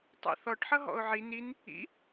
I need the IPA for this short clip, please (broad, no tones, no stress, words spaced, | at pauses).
tˤɛ̰θɔʈħʌ ɦɔ̰ʊ̯ʕi nin | ḭ